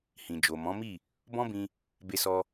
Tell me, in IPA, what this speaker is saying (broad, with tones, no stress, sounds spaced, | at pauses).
h ĩ˨ d͡ʒ o˨ m ɔ̃˨˦ m i˦˨ | b ɔ̃˦ b ĩ˧ | b e˧ s ɔ˧